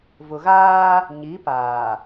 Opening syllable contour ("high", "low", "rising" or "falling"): low